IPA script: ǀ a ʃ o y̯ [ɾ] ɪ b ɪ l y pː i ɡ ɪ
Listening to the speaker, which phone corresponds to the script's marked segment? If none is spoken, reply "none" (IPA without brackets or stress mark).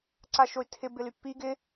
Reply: tʰ